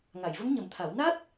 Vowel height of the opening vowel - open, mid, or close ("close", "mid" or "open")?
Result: open